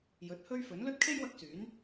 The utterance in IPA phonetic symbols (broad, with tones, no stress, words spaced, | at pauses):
jɵ˨˥t̚hɵ˥ɥfɵ˨˥n lɵ˥t̚kʰe˥j wɐ˥k̚syː˨˥n